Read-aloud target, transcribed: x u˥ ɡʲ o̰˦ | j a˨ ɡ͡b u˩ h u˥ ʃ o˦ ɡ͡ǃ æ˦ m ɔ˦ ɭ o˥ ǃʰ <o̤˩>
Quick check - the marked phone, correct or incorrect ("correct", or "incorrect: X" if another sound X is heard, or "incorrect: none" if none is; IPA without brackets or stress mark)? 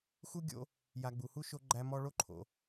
incorrect: o̰˩